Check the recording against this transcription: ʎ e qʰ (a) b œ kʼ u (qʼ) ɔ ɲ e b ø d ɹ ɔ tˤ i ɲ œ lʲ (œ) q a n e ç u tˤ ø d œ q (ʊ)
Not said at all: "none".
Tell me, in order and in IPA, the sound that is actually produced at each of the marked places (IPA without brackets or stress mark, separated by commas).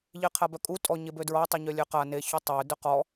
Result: a, tʼ, ø, ɔ